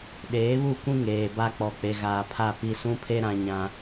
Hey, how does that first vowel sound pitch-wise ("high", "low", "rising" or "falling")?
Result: rising